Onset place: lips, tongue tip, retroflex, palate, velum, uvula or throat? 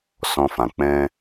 tongue tip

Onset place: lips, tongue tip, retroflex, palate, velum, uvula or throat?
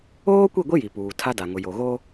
velum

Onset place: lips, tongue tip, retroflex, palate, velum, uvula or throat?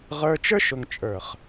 uvula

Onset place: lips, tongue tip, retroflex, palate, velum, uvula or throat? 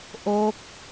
throat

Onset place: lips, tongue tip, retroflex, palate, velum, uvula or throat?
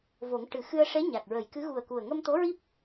lips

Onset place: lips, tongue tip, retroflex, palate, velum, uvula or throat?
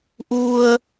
throat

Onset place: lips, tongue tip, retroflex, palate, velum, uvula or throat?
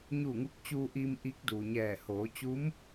palate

